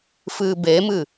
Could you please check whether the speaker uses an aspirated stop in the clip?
no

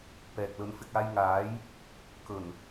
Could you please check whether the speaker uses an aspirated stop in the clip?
no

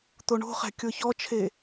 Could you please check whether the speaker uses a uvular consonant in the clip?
yes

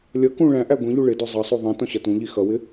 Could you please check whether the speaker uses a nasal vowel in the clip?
yes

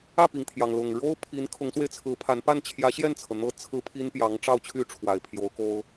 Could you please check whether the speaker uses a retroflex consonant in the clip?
yes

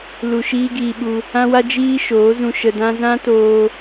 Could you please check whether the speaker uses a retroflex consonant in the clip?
no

